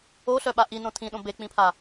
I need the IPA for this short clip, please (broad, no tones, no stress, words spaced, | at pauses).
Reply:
oɬœɓa ʔinõ tʰĩɗõ bek͡pĩpʰa